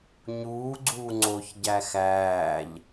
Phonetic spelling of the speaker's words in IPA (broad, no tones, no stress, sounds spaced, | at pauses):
ɲ uː ɡ͡ǀ uː ŋ͡ǀ o ç ɟ æ x æː ʎ